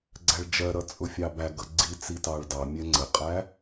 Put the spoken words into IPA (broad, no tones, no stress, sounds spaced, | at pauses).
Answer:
ɡ͡ǀ æ ɭ d͡ʒ ɜ ɾ ʌ t͡sʼ ʊ fʲ ɑ b æ ɡ ʌ ɡ͡ǀ i t͡s i t ɑ ɭ d ɑ mʲ ɛ ŋ͡ǀ ə qʼ æ